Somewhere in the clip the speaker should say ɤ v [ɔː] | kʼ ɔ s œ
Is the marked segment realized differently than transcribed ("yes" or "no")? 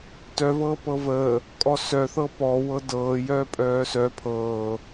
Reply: yes